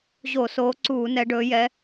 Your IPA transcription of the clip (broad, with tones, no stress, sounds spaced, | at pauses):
ʑ o˧˩˧ s oː˨˦ ǀ uː˧˩˧ n ɛ˨˦ ɖ ɵː˨˦ j ɛ˨˦